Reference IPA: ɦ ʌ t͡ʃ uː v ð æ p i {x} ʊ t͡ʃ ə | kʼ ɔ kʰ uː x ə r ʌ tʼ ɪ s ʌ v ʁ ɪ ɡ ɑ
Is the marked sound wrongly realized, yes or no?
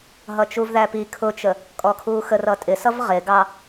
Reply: yes